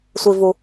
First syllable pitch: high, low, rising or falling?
low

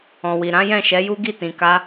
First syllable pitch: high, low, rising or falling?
low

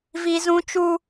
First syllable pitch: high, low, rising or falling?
high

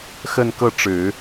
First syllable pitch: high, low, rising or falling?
falling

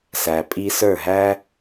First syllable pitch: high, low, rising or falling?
low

